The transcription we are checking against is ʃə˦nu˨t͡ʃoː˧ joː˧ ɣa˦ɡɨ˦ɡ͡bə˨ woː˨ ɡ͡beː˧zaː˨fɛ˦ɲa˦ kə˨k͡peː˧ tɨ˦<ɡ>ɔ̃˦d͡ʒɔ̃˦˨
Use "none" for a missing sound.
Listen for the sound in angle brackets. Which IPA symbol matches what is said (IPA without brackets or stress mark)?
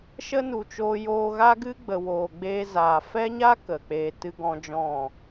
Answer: ɡ